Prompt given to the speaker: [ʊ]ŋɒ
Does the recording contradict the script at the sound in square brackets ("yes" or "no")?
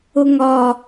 no